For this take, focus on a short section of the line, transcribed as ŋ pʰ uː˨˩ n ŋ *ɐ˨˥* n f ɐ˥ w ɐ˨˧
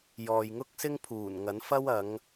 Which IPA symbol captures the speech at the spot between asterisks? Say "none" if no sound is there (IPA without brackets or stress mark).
ɐ˨˥